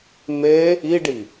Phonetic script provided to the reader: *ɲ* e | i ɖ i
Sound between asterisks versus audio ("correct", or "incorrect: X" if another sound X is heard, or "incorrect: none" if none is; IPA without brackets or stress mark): incorrect: m